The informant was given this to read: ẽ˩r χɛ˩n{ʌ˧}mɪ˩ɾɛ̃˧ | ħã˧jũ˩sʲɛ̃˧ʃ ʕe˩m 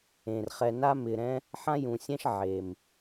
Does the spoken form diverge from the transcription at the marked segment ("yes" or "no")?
yes